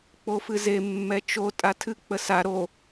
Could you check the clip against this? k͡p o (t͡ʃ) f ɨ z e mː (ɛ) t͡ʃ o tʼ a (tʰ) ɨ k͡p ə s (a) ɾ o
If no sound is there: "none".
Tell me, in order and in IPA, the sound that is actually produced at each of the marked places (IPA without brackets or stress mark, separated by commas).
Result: none, ɛ, tʰ, a